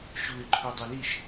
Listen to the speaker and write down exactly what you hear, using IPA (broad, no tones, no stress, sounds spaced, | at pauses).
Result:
ɕ u ɪ̯ ǃʰ u dˤ i l i ʃ